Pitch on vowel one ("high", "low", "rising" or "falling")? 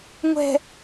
low